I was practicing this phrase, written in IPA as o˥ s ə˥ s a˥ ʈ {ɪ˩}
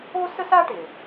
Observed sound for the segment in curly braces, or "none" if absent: ɪ˩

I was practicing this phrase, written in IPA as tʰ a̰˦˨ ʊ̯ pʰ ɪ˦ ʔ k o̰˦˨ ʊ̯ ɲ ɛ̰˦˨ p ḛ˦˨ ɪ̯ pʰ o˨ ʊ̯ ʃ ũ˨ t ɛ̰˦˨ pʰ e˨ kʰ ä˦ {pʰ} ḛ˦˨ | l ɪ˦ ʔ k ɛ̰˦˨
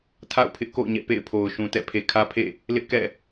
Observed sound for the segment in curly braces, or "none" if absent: pʰ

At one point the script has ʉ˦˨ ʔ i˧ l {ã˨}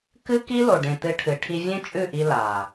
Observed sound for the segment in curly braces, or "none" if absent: a˨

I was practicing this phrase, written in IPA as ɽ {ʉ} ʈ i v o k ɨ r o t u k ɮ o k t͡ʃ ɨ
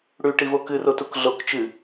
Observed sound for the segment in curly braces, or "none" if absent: ʉ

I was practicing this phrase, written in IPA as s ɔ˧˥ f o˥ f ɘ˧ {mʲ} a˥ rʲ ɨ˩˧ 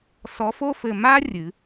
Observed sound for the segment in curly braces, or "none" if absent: m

